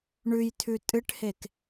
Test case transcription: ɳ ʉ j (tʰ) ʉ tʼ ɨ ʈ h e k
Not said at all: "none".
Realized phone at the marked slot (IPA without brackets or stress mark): tʰ